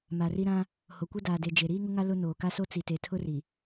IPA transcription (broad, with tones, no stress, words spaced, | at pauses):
ma˨ri˦ ɾã˦ | ho˨kʷɛ˦ daː˨de˨ d͡ʒe˨ɾiː˦ŋʊ˦ŋa˦ lʊ˦ noː˨ka˦so˦ t͡si˨te˨tʰʊ˦ri˨